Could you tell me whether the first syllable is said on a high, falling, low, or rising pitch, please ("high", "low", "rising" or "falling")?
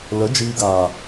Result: rising